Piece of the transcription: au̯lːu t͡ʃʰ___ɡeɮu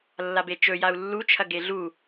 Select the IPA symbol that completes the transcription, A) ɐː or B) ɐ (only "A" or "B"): B